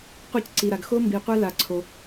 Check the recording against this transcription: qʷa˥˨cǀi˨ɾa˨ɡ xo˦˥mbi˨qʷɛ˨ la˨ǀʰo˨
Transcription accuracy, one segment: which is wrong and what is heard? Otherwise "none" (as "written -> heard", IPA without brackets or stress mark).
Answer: ɛ˨ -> ɛ˦˥